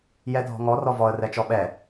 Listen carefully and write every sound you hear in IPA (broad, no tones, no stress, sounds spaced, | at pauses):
j ɛ dʱ ɔ̤ ŋ ɔ r ɔ v ɔ ə̯ r ɛ t͡ʃ ɔ ɓ ɛ